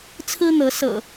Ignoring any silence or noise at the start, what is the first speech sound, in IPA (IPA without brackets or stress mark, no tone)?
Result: t͡sʰ